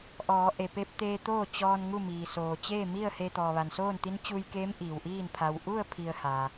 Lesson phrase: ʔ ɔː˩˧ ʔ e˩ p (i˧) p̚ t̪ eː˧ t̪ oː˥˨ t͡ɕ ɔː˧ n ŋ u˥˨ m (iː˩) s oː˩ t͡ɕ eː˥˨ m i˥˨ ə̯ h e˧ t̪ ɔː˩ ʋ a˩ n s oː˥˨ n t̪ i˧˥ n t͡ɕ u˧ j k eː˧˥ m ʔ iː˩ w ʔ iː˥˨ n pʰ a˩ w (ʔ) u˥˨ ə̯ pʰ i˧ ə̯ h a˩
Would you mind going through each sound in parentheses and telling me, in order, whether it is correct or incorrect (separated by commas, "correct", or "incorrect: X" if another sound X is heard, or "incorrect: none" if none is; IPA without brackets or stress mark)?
incorrect: e˧, correct, correct